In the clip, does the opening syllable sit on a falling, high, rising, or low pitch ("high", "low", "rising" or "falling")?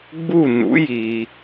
falling